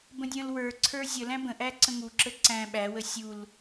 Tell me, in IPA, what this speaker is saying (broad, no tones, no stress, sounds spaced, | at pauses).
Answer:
b ə̃ dʲ ə̃ː l w ə˞ ǀʰ ə˞ zʲ ə l æ̃ b ə̃ ʔ æ ǀ ə̃ ŋ u ǁ ə ǀ æ̃ ɓ æ w ə sʲ u l